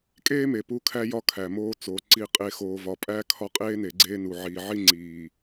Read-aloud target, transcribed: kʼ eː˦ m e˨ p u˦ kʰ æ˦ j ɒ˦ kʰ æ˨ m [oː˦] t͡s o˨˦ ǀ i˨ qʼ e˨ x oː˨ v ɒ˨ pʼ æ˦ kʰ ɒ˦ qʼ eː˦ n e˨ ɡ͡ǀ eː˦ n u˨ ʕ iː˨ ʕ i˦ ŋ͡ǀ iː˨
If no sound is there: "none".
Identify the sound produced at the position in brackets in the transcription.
oː˦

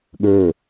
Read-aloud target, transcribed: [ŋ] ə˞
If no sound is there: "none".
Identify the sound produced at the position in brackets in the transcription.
ɠ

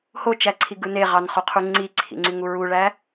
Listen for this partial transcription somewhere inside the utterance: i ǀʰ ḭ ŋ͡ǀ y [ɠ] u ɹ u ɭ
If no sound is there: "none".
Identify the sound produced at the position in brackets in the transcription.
ŋ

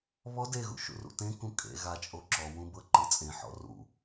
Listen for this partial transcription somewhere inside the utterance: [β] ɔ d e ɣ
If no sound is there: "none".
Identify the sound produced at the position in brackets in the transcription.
β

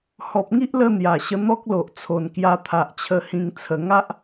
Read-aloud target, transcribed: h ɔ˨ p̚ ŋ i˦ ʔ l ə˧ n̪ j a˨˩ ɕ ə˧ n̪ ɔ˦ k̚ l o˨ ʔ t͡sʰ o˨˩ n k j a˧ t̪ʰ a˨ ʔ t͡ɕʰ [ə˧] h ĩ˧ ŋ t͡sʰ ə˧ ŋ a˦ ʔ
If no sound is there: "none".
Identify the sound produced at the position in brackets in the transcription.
ə˧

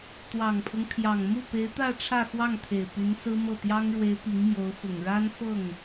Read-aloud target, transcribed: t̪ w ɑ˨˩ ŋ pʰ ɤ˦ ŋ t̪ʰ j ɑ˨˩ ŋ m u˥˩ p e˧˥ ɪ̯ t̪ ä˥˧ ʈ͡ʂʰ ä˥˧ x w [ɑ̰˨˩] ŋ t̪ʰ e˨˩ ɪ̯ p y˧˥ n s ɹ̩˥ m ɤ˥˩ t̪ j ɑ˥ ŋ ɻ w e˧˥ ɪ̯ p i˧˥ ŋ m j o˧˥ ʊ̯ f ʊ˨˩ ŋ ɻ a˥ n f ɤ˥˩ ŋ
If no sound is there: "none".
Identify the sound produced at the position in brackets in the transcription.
ɑ˥˩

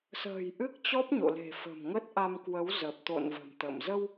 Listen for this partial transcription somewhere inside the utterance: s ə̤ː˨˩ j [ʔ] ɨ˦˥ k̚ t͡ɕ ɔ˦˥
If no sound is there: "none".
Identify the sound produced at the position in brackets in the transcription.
ʔ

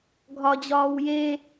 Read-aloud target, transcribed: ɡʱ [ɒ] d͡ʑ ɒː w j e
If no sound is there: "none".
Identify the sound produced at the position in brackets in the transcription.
ɒ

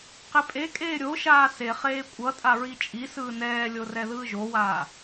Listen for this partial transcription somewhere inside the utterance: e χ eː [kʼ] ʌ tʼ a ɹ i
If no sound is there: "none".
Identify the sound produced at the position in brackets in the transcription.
kʷʼ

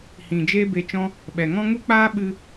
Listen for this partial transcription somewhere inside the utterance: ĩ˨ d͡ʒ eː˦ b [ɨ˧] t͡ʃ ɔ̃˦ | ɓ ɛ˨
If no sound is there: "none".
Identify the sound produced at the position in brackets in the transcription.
e˧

